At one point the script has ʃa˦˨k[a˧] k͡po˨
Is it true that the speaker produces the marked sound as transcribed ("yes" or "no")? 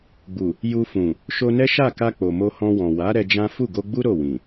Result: yes